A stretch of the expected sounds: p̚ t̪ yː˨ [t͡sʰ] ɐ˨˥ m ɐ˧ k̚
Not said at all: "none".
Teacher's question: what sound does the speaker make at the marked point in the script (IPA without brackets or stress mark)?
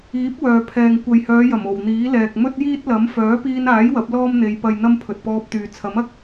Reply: t͡sʰ